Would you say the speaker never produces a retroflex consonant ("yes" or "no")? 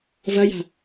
yes